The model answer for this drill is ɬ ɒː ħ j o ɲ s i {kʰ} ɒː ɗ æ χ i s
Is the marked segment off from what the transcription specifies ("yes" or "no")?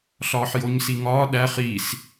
yes